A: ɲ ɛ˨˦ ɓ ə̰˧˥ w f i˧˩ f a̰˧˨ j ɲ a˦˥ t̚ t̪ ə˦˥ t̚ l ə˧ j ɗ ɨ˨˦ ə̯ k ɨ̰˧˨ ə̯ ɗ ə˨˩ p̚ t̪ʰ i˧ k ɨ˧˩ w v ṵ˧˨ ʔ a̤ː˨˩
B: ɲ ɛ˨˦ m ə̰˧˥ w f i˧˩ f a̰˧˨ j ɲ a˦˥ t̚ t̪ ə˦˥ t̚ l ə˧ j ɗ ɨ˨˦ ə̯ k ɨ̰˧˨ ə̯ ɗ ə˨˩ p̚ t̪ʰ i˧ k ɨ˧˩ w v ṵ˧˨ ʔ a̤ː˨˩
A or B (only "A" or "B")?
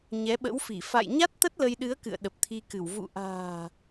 A